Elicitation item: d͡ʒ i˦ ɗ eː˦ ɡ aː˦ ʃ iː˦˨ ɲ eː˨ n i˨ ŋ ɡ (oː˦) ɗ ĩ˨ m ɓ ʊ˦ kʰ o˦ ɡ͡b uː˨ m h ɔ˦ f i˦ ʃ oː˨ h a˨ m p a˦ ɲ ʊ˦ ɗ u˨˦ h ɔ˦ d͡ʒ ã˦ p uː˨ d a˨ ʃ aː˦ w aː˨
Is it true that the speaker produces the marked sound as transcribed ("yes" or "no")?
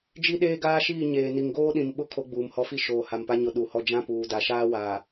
yes